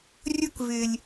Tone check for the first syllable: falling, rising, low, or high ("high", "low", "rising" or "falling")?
high